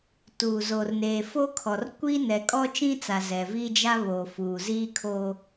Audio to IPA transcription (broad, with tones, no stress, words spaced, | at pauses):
tuː˨zoː˨r neː˨foː˦kʰɔ˨r kʷi˦ nɛ˨kʼɔ˦t͡ʃĩ˦t͡sa˨ zɛ˨vi˦d͡ʒa˦ βo˨ fuː˨ziː˦ kʰo˦